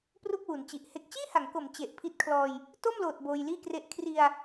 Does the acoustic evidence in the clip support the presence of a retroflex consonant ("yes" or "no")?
no